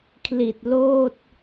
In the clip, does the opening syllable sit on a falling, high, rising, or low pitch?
low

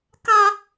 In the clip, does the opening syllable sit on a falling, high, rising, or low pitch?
high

